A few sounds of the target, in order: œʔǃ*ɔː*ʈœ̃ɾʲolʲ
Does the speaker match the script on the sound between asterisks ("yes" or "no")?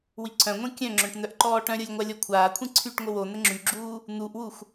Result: yes